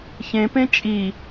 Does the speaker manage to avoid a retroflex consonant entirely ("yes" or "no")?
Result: yes